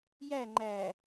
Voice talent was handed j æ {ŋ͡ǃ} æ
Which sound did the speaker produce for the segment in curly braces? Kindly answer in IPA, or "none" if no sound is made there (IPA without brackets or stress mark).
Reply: ŋ͡ǃ